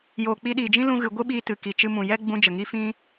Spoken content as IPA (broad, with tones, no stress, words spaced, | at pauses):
joː˨k͡pi˧ɗiː˨d͡ʒĩ˦ lũ˦ɣɨ˧ ɡʷɨ˦ɓiː˧ tɨ˨ ki˨t͡ʃɨ˧mũ˨jɛ˦ ɡ͡bũ˦ d͡ʒə˨ŋi˦ fĩ˦